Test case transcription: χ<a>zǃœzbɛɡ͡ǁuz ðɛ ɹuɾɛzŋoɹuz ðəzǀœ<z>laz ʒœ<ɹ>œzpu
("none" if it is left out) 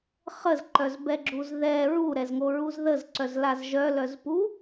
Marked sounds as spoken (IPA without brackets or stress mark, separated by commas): ə, z, l